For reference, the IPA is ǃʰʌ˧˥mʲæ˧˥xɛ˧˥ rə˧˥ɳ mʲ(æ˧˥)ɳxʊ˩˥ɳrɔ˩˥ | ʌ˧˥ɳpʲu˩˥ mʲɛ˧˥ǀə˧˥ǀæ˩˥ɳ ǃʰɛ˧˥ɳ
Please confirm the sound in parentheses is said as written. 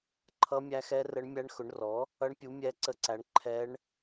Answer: yes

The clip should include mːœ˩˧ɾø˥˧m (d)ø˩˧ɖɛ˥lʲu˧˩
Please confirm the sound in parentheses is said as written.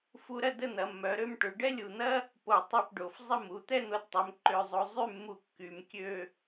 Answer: no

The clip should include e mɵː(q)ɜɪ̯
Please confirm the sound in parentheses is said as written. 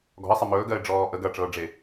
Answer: no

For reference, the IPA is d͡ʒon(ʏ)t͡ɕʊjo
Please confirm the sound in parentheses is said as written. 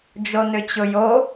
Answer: yes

